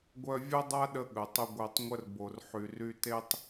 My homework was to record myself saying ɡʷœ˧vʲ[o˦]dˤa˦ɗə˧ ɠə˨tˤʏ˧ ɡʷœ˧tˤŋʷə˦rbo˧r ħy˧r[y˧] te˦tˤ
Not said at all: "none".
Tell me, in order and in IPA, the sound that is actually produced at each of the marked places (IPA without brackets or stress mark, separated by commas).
o˦, y˦